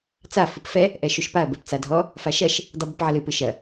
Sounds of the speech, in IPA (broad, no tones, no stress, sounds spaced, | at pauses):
t͡s a f ɨ p f ɛ | ʔ ɛ ʃ u ʃ p a ɐ̯ b ɛ p t͡s a dʱ ɔ | f a ʃ ɐ ʃ | dˤ i b ɨ p ʕ ɐ l ɨ p ɨ ʃ ɐ